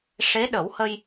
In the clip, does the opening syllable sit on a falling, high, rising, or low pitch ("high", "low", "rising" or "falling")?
rising